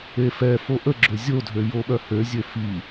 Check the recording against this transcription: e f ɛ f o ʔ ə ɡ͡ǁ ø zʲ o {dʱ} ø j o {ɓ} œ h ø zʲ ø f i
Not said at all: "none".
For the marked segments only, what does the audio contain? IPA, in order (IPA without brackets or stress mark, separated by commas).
dʱ, ɓ